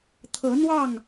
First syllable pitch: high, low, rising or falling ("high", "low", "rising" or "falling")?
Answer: rising